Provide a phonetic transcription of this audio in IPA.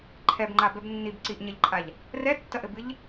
ǃʰ ɛ b ŋ͡ǃ a b ɛ b nː i b ǀ i ʔ ɲ ɐ ʎ ǃʼ a ʎ | r ɛ tː ɐ ʔ ɘ b ɨ ʎ

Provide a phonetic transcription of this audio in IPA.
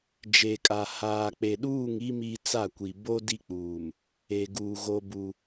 d͡ʒ e˨ kʼ a˨ h aː˨ k͡p e˨ ɗ uː˦˨ ŋ i˦ m i˦ t͡s a˦˨ kʷ i˨ b o˦ d i˦ k͡p uː˨ m | e˨ ɡ uː˨ ɣ o˦ b u˦

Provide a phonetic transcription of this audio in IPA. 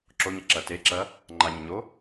ǁ o ɲ ɐ ǁ ɐ t e ǁ ɐ | ŋ͡ǃ a ɲ ɐ ɲ o

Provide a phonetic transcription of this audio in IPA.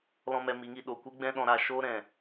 l ɔ̃˦ m ɛ˧ m i˨˦ ŋ i˧ ɗ o˨ kʷ i˦ ɡ͡b ɛ̃˦ ɗ ɔ̃˧ ɾ aː˧ ʃ oː˦ ɾ ɛ̃˨

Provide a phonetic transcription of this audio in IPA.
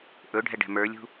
ʔ ɵ ɖʱ ɛ ɖ ɛ̤ m ə˞ lʲ ṳ

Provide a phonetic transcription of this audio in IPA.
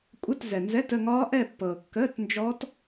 kʷʼ ə˧˥˧ t z ɛ˨ n z ɛ˧˥˧ t ə˥˧ ŋ ɒː˦˥ ʔ ɛ˥˧ pː ɤː˨ kː əː˧˥˧ t n d͡ʒ ɔ˦˥ t

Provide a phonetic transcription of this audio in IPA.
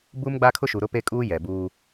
b u˦ m ɡ͡b a˦ kʰ ʊ˦ ʃ u˨ ɾ ʊ˦ p e˦ kʼ uː˦ j ɛ˨ b uː˦

